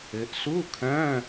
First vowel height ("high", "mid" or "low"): mid